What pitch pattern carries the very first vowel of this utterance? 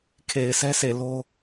low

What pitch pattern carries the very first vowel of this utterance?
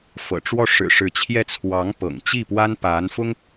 low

